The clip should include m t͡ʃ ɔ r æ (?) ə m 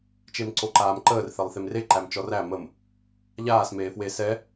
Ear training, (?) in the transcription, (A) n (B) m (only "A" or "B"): B